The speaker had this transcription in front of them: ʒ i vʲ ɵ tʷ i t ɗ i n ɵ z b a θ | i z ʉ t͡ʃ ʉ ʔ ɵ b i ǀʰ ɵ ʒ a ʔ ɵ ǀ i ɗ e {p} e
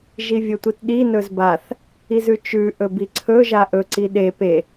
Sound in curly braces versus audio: correct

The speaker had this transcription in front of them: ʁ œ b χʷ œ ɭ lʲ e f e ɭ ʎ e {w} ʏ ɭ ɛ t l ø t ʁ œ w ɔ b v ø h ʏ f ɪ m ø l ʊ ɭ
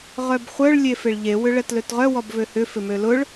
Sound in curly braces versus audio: correct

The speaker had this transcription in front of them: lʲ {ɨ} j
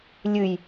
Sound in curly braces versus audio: correct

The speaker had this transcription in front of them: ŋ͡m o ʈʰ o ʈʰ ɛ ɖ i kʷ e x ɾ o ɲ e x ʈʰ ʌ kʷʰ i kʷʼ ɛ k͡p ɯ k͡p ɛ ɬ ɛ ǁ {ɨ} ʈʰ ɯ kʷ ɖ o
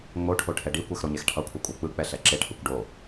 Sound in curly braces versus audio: incorrect: e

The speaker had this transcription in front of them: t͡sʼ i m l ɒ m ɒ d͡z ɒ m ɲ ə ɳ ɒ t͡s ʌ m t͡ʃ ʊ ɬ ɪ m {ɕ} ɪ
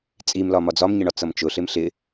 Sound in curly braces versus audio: incorrect: ɬ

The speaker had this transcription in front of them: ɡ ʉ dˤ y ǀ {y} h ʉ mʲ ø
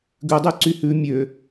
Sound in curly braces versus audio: correct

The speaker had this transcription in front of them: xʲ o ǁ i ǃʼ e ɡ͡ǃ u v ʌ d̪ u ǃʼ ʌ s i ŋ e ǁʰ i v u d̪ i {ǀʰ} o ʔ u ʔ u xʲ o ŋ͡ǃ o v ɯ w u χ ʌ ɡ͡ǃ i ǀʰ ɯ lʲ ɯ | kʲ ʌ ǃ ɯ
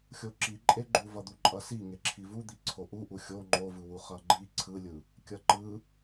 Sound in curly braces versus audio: correct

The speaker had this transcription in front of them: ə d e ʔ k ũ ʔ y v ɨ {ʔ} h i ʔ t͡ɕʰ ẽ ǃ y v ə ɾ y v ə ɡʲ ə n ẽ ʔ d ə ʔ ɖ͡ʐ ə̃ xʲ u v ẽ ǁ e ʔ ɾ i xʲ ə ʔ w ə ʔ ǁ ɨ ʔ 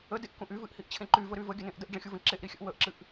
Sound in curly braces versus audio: correct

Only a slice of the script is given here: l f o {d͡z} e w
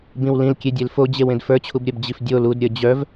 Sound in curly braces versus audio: incorrect: d͡ʑ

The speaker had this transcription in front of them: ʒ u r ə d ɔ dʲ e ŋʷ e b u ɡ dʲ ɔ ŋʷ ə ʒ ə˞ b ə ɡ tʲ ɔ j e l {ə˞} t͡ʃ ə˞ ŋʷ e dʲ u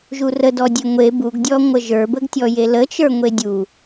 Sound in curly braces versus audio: incorrect: ə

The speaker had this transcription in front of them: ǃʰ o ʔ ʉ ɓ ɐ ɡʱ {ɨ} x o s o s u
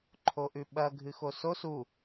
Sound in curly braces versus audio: correct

